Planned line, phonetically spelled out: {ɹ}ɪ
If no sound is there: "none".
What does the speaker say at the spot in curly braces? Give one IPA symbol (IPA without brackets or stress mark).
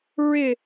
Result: ɹ